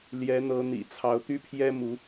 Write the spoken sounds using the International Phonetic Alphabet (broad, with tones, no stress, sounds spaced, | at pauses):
l j ɛ˧˥ n̪ ɤ˧˥ n̪ ḭ˨˩ t͡sʰ ɑ˧˥ ʊ̯ t̪ y˥ pʰ j ɛ˥ m u˧˥